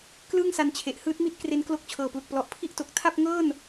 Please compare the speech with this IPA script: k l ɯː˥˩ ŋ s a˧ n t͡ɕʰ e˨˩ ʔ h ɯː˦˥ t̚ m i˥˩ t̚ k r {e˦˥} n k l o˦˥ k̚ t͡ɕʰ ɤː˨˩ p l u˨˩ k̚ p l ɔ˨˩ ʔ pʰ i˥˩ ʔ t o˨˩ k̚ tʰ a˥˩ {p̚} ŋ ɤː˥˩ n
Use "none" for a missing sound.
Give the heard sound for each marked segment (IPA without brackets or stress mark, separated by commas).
e˦˥, p̚